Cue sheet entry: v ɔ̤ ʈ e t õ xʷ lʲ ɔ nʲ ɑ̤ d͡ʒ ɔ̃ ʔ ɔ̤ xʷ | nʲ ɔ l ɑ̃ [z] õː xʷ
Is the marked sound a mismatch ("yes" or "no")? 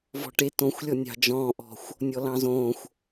no